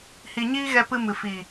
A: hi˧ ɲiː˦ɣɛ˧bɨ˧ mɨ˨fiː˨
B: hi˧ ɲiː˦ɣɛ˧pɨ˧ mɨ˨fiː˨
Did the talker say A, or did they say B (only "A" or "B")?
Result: B